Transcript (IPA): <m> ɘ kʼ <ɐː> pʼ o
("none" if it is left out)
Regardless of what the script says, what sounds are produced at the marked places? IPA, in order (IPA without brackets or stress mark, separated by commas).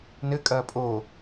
n, ɐː